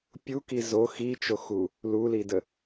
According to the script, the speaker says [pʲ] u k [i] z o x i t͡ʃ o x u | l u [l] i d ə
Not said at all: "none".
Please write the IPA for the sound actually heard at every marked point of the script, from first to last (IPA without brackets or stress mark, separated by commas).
pʲ, i, l